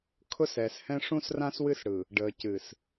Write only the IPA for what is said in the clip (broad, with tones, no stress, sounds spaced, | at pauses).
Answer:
kʰ ʊ˦ s ɛː˨ s h ɛ̃˦ ʂ ũ˦ s r ã˦ s w ɨ˦ s ɽ ɯ˨ | ɖ əː˨ c ɨ˨ s